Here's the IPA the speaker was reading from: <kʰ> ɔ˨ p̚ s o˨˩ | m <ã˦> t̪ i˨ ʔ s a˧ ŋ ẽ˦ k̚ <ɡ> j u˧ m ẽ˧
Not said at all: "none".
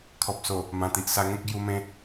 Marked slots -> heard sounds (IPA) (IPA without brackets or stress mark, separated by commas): kʰ, ã˨˩, ɡ